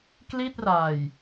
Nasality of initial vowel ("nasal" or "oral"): oral